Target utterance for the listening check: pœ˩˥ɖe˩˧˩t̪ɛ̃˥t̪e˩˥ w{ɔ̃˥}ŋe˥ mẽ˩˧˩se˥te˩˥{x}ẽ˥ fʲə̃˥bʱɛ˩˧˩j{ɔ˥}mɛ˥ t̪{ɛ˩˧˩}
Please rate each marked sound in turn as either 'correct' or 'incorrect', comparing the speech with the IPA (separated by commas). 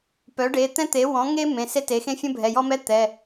incorrect, correct, correct, correct